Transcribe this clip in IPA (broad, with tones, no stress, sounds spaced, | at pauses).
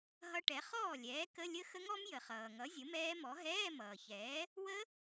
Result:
ɦ ʌ˦˥ ʈ ɛ˩˥ χ ɔː˥˩ lʲ ɛː˩˥ k ə˧˥˧ lʲ ə˦˥ x ə˦˥ ŋ ɔ˦˥ m j ə˩ χ ʌː˩ ŋ ʌ˩˥ zʲ ə˩˥ m ɛː˦˥ m ɔ˩˥ ɦ ɛː˧˥˧ m ʌː˩ ç ɛː˩˥ | w ə˦˥